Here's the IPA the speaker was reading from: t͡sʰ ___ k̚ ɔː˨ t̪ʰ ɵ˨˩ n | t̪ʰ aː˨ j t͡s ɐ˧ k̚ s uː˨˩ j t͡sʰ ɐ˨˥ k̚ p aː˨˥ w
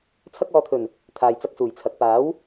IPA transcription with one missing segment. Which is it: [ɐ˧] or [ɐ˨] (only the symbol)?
ɐ˧